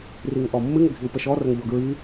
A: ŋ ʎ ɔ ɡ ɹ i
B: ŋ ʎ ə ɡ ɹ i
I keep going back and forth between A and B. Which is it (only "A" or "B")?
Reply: A